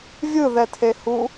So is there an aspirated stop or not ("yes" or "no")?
yes